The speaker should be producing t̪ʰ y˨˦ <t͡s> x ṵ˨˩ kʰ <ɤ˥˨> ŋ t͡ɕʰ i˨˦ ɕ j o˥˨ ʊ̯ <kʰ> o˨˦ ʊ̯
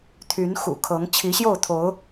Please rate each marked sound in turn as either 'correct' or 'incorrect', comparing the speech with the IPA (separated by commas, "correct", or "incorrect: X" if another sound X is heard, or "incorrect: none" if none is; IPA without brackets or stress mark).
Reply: incorrect: n, incorrect: ɤ˨˦, incorrect: t̪ʰ